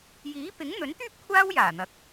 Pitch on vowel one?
rising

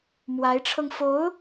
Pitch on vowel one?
rising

